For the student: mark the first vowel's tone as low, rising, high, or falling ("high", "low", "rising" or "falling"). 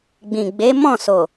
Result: low